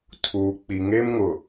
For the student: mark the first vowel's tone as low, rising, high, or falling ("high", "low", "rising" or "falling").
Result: low